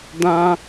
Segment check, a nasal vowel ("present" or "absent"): present